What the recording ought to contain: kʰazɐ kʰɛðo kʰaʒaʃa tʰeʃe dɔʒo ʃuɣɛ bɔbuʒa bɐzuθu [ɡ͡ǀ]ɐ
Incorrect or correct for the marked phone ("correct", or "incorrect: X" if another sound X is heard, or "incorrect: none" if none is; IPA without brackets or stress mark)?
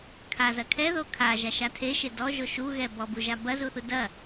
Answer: incorrect: d